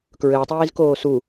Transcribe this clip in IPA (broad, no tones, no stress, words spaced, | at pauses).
kɹɘːtˤiːzkoː su